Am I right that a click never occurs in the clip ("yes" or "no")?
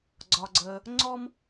no